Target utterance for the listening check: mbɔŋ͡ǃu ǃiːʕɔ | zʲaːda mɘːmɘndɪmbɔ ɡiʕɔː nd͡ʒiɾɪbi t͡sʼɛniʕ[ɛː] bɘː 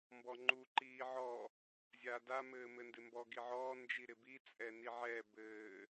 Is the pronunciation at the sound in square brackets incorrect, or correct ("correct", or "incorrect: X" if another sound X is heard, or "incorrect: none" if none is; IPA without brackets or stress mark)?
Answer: correct